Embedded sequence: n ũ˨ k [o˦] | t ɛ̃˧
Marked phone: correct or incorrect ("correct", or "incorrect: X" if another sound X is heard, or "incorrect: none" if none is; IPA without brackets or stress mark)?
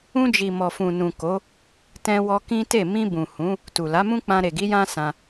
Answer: incorrect: o˨˦